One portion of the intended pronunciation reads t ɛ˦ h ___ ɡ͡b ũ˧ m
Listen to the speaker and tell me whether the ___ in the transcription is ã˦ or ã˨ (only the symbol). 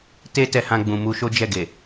ã˦